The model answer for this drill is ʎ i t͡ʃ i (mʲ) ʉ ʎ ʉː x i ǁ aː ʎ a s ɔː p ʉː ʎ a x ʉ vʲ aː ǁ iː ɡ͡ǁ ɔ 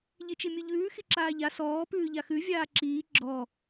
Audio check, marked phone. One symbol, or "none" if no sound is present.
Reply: mʲ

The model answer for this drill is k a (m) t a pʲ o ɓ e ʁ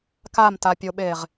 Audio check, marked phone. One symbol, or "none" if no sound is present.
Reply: m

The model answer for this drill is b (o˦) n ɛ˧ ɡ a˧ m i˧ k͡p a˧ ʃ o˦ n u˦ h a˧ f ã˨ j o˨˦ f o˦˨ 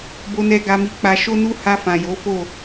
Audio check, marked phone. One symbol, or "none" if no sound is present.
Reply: o˧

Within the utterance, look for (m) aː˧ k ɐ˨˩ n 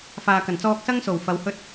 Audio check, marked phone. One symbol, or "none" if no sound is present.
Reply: f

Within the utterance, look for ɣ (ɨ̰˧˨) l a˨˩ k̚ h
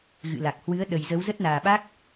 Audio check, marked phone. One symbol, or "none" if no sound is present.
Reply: ɨ̰˧˨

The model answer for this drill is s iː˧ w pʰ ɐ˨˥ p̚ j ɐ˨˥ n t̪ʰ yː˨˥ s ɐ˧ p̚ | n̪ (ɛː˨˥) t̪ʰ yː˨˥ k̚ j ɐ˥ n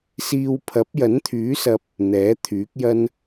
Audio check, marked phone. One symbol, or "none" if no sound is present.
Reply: ɛː˨˥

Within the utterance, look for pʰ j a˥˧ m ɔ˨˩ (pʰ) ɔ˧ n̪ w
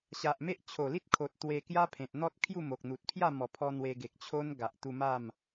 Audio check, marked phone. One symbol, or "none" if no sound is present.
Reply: pʰ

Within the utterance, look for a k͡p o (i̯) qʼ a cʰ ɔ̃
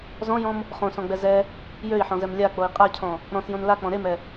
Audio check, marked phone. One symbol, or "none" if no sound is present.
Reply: i̯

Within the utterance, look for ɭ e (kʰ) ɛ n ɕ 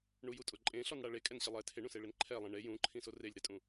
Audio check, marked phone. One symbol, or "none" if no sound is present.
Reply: kʼ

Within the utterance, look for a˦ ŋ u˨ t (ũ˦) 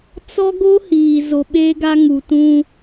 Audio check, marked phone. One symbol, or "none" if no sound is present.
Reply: ũ˦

